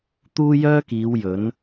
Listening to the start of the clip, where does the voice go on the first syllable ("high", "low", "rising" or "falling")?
high